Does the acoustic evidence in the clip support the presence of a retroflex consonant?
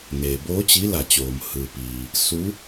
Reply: no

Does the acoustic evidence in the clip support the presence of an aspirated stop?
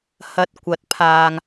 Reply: yes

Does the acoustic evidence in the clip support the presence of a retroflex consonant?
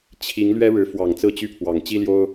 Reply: yes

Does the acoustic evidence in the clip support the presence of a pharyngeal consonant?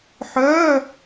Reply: yes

